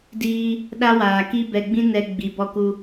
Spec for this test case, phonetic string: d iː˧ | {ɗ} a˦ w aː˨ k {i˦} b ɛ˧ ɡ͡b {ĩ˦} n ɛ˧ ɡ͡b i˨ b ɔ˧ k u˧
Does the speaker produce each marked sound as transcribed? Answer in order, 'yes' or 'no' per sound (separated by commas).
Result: yes, yes, yes